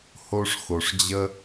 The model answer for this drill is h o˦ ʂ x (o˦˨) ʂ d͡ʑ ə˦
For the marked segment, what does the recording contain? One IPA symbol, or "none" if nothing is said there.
o˨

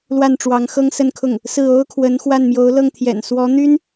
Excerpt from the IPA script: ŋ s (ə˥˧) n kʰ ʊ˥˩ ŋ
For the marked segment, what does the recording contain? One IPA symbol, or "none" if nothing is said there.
ə˥˧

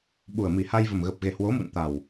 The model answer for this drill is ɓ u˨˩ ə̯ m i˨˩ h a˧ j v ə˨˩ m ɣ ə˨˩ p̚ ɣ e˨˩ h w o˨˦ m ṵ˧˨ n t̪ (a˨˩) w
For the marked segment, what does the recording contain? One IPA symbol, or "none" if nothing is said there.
a˨˩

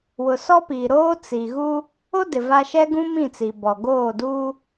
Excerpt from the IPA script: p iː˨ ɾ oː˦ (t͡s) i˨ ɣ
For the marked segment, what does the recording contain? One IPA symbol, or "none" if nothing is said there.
t͡s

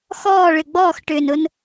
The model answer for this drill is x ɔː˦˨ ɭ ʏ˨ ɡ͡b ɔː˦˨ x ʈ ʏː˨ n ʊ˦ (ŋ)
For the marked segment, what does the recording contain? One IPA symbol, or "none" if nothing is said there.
n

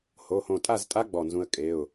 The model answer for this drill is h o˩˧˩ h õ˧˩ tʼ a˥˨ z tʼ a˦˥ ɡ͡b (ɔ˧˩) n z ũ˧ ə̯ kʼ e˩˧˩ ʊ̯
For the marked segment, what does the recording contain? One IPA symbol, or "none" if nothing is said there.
ɔ˧˩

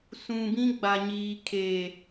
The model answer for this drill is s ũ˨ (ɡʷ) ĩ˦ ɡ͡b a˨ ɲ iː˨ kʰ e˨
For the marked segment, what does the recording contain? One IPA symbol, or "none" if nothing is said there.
b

